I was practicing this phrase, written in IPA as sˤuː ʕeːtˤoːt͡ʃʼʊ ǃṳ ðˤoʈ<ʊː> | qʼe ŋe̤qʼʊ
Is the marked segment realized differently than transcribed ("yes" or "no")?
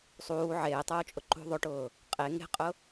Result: no